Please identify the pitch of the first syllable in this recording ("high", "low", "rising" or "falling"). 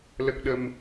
low